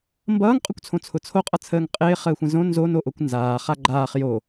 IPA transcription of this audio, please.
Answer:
m b ʌː ŋ qʼ ʊ kʷ t͡sʰ õ t͡sʰ ʊ t͡sʰ o qʼ ʌ t͡sʰ əː ŋ qʼ ɪː χ əː xʷ ə̃ z õ n z o n o ʔ o kʷ n z aː χ a ɡ͡ǃ aː χ j o

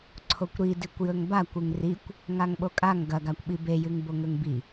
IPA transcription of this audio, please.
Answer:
ǀʰ o kʷ ɾ i d i kʷ j ɵ ŋ b a kʷ ʉ ŋ r i kʷ | ŋ a ŋ ɓ o kʼ a ŋ ɡ ɐ ɡ a kʷ ɓ i b e j ɨ ŋ b o ŋ ɵ ŋ b i

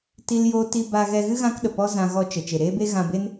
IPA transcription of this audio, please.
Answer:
t i˦ l j oː˦ t i˧ b a˧ ɣ ɛ˧ ɣ ɨ˦ ɣ ã˦ k ɗ ə˨ p ɔ˦ z ã˧ ɣ ɔ˧ t͡ʃ ə˨ t͡ʃ e˨ ɾ eː˦ b e˦ ɣ ã˧ b e˦ n

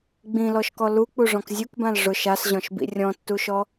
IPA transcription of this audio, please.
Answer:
ɡ͡b ĩ l ɔ ʃ k ɔ l u k͡p u ʐ ɔ̃ k zʲ u k b ã l ʐ ʊ ʃ a s ʑ ɔ̃ ʃ b ḭ rʲ ɔ̃ tː u ʃ ɔ

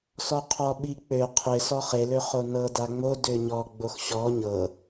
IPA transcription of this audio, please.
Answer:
s ɔ qʰ ɔ ɓ i k͡p ø qʰ ɪ s ɔ χ e l ø χ o n ɤ d a ŋ͡m o d ø ɲ ɔ ɡ͡b o x ɕ ɔ ɲ ɤ

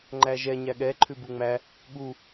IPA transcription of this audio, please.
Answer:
ŋ͡ǃ æ ʒ ɛ ɲ æ ɠ ɛ ǃʰ ʉ b u ŋ͡m æ | ɠ u

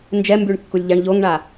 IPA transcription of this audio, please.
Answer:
n d͡ʒ ɛ m b y ɳ kː u lʲ ʎ a ɳ ʎ o ŋ ɳ a

